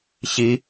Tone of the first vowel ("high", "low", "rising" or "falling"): low